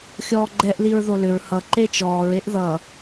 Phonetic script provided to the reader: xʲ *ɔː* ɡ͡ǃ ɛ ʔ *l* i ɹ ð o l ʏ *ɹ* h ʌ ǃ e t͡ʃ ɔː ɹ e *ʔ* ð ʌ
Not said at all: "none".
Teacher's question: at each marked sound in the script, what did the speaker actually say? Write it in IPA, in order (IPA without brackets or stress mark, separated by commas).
ɔː, l, ɹ, ʔ